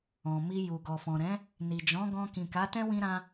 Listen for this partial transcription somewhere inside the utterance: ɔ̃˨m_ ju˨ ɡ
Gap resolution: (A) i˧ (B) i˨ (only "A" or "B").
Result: A